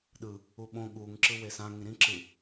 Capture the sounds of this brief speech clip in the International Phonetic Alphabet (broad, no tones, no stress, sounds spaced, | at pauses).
ɗ ɯ | u ɓ õ ɠ u ŋ ǁ ɯ w e s ã ŋ ĩ ɾ ĩ ǁ ɯ